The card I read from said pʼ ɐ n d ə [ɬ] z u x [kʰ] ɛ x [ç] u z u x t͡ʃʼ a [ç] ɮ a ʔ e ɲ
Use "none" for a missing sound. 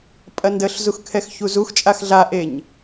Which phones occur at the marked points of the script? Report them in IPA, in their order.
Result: ɬ, kʰ, ç, x

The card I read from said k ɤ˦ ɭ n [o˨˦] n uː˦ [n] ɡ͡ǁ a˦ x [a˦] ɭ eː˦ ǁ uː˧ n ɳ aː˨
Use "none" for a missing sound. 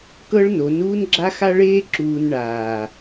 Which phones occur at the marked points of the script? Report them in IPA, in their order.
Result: o˨˦, n, a˦

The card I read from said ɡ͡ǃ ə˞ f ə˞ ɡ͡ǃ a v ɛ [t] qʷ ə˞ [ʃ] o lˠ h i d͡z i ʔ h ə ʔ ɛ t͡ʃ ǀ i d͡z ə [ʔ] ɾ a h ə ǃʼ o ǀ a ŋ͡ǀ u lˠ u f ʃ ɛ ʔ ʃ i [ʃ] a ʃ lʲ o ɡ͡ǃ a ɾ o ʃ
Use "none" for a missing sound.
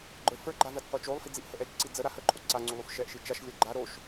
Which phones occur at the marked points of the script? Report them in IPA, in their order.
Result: t, t͡ʃ, none, t͡ʃ

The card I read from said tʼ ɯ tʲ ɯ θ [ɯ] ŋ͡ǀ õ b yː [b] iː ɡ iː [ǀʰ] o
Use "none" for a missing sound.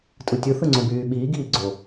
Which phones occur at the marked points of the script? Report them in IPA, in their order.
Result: ɯ, ɓ, ɡ͡ǀ

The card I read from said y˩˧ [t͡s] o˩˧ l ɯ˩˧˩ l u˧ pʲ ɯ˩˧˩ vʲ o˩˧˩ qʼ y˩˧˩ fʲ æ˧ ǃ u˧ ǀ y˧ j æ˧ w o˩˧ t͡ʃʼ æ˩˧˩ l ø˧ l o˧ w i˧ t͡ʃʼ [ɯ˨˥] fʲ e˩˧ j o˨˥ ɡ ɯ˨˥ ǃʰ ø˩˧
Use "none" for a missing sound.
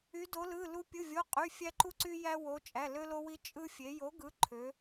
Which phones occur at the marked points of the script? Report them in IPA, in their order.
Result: d, ɯ˧

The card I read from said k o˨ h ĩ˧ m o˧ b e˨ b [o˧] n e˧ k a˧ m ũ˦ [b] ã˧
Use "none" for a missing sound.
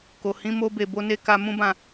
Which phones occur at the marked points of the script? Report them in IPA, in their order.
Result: o˧, b

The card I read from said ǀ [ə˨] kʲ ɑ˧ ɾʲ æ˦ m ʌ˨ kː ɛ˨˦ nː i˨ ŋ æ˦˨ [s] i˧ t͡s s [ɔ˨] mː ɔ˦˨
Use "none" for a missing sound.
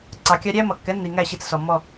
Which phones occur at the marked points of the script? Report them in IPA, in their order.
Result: ɑ˨, ɕ, ɔ˨

